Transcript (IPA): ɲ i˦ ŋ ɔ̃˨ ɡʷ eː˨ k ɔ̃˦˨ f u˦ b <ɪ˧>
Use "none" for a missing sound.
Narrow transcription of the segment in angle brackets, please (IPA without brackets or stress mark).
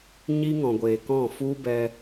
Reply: ɛ˧